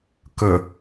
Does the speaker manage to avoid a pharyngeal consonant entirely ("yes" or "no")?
yes